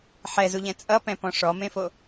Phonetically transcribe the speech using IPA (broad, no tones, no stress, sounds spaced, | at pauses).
ħ ɛ z u ʎ ɛ̃ t͡sʼ ʌ p ɛ̃ p ɔ̃ ʂ ɔ m ẽ f o